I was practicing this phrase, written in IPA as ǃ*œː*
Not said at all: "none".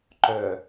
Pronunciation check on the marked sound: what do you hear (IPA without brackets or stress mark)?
œː